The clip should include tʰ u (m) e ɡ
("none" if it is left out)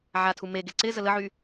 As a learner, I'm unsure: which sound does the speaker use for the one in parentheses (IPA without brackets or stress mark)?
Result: m